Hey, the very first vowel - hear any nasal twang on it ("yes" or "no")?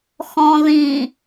yes